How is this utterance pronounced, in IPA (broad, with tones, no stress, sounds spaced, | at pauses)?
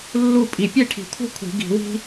lː u˥˨ pʼ i˨˩˦ pʲ e˥˨ ʈʰ i̤˨˩˦ kʷʰ ɛ̤˥ kʷʰ i̤˨˩˦ ɡ i̤˨˩˦ w i̤˥